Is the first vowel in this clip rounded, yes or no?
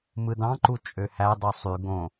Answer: no